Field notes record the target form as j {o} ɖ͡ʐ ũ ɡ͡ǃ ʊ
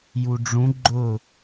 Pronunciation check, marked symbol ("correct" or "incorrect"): incorrect